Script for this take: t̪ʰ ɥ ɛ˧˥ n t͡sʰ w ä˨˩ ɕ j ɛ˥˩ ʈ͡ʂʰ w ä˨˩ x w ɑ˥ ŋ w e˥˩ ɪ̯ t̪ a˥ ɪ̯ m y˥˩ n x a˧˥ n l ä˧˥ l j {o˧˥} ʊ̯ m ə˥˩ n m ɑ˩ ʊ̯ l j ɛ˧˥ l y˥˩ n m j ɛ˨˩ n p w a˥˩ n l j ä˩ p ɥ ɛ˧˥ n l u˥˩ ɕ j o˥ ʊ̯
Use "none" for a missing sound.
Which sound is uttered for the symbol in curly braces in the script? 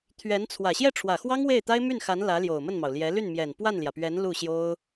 o˨˩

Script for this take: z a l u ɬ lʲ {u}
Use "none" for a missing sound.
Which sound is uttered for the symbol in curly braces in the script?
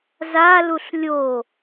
o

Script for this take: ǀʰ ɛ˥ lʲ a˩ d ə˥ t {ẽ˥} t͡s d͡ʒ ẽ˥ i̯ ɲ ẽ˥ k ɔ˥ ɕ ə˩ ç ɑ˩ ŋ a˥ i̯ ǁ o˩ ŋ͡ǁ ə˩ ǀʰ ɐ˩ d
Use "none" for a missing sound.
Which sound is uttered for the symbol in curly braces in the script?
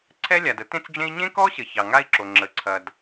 ẽ˥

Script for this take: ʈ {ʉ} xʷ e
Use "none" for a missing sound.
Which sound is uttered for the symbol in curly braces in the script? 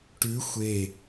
ʉ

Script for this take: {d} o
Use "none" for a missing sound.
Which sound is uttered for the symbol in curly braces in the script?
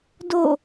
d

